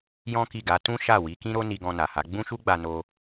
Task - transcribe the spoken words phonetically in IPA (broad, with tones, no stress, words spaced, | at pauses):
jɔ̃˦ki˦˨ɡa˨˦ tũ˦ʃa˦˨ wi˨˦kĩ˦ɾo˦ ni˧ɡɔ̃˧na˨ha˨˦ ɡ͡bũ˦ʃu˦ɡ͡ba˧ no˧